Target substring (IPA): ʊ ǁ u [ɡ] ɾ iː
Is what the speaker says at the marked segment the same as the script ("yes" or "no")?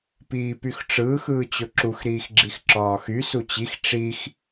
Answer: no